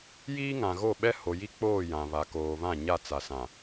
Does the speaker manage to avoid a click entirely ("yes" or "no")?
yes